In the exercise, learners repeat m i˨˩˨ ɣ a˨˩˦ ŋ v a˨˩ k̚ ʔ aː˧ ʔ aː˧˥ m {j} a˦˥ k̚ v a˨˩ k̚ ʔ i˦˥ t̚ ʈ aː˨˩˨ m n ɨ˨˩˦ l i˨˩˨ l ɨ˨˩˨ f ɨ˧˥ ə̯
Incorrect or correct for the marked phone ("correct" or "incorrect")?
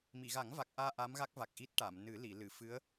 incorrect